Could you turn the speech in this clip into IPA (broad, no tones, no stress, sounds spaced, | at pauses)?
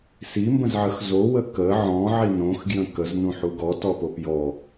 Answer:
s i m b ə̃ z ʕ ə x z o w ə k ə ʕ ɔ̃ ʕ i n õ x ɡ j ə̃ k ə z n ũ ħ u ɡ ɔ t ɔ p o p j ɔ